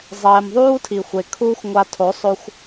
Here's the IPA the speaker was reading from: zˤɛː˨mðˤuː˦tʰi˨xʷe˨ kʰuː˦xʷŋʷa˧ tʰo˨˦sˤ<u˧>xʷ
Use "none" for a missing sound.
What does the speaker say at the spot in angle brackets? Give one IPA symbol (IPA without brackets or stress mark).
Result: o˧